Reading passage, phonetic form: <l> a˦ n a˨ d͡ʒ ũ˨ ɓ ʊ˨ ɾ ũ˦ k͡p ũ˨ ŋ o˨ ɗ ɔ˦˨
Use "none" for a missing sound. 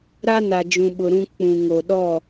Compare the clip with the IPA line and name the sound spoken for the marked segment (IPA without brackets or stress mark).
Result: ɾ